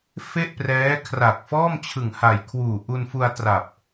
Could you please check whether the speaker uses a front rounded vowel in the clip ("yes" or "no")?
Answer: no